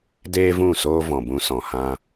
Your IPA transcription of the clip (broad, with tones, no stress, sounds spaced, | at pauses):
d eː˦ v ũ˦˨ s oː˦ v ɔ̃˨ b ũ˧ s ɔ̃˨ h ã˧